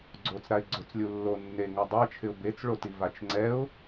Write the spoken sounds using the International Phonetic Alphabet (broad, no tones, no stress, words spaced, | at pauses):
ɡ͡ǀot͡sɾaɪ̯ ɡ͡ǀʊt͡slʲu lːo nːe ŋadˤat͡ʃʰɪʊ̯ bet͡sɭoti vat͡ʃŋ͡ǀɛʊ̯